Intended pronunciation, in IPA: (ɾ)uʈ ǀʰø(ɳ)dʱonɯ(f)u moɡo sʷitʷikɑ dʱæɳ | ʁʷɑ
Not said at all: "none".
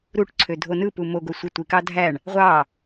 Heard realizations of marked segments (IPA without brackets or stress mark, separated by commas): ɾ, none, p